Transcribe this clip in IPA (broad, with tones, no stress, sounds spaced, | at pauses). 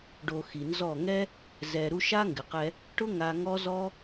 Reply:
ɖ o˧ x i˨ n z ɔ˦˨ ŋ ɛ˦ | z ɛ˧ ɾ u˦ ʃ a˦ ŋ ɡ ɪ˨ q ɛ˧ | ʈ ʊ˦ ŋ a˧ ŋ ɔ˦ z ɔ˦